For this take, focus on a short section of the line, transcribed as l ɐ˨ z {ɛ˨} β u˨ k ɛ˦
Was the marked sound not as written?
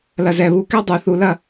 no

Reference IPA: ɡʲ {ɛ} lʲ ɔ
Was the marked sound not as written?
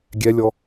no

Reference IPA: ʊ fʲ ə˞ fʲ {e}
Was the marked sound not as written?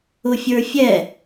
yes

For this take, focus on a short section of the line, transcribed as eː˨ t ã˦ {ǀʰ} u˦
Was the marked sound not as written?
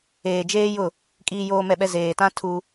yes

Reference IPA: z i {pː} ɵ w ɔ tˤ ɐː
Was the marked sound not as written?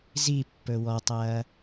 no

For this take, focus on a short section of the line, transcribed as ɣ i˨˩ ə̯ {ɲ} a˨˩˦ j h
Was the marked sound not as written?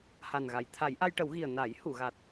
yes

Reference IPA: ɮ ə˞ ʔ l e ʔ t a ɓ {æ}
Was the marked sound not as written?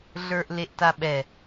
yes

